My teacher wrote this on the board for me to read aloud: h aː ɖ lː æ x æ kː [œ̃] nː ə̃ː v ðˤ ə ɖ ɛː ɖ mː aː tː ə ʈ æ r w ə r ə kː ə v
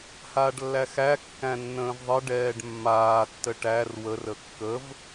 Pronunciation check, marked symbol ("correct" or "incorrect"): incorrect